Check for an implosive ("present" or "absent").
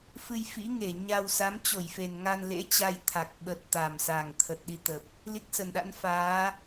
present